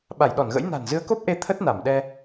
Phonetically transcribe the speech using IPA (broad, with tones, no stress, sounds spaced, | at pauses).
ɓ a˧˩ j ɗ ɔ˧˩ n ɣ ə̰˧˥ j n a̤˨˩ n z ɨ˨˦ ə̯ k o˦˥ p̚ ʔ e˧ t̪ʰ ə˦˥ t̚ n a˧˩ m ɗ ɛ˧